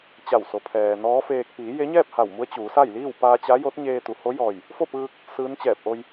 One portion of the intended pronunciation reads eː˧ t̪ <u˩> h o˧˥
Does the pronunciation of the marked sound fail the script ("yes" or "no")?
no